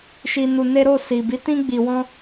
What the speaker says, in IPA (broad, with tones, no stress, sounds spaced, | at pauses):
ʃ i˧ n u˧ n e˦ ɾ o˦˨ s i˨ b i˨˦ t ĩ˦ ɡ͡b i˧ w ɔ̃˦